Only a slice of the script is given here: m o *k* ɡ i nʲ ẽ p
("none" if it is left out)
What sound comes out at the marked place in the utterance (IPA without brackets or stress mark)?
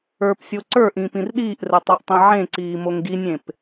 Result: ŋ